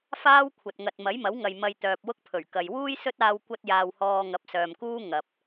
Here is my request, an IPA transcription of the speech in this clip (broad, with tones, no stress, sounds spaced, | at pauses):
f aː˥ w kʷʰ ɐ˨ t̚ ŋ ɐ˨ t̚ m ɐ˨˥ j m ɐ˨˥ w ŋ ɐ˨ j m ɐ˨ j t̪ œː˨ p̚ w ʊ˥ k̚ pʰ ɵ˨˩ ɥ k ɐ˨ j w uː˥ j s ɵ˥ t̚ aː˧ w kʷ ɐ˥ t̚ j aː˧ w h ɔː˧ ŋ ɐ˨˥ p̚ s œː˨ m k uː˥ ŋ ɐ˨ p̚